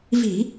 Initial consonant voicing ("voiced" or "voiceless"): voiced